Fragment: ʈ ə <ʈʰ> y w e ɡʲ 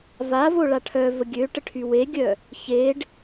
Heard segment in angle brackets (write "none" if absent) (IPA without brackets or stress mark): ʈʰ